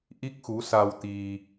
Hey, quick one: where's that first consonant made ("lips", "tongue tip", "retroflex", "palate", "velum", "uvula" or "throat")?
throat